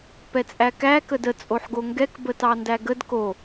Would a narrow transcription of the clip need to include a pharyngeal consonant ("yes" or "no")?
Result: yes